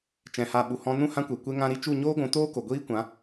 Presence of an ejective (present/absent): absent